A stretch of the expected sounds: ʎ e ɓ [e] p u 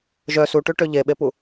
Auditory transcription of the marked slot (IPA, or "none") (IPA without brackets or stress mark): e